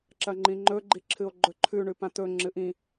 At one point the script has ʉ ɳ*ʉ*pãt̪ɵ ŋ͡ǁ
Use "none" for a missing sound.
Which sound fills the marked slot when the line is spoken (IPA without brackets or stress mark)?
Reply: ʉ